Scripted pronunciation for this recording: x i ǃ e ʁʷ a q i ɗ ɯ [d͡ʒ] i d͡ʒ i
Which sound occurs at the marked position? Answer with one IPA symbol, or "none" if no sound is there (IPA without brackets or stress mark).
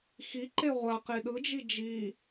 d͡ʒ